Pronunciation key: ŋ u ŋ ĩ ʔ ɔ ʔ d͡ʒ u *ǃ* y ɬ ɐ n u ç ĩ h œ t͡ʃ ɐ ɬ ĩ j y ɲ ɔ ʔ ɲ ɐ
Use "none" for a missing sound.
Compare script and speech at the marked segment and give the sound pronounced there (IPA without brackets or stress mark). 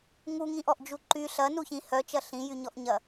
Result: ǃ